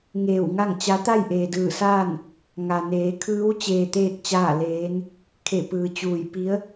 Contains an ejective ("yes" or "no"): no